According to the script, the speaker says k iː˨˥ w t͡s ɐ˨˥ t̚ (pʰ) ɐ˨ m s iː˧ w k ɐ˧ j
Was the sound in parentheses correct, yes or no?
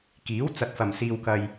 no